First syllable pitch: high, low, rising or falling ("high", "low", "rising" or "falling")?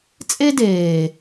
high